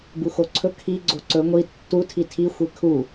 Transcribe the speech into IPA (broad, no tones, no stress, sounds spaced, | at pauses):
b u x o ǀʰ ɵ kʰ i ɡ͡ǀ o ǀ ɵ ŋʷ i tː u tʰ i tʰ i xʷ e kʰ u